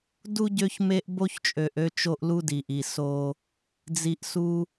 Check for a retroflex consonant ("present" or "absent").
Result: absent